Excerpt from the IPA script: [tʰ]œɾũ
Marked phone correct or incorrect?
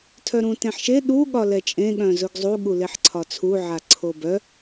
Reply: correct